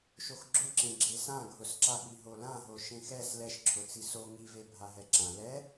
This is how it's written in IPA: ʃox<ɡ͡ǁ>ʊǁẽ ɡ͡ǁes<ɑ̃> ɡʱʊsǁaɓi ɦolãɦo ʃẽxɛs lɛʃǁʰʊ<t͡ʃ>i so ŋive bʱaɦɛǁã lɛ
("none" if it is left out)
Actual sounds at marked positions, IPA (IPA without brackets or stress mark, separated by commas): ɡ͡ǁ, ã, t͡s